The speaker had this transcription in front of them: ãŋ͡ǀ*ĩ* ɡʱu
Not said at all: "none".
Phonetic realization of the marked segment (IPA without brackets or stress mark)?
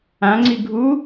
i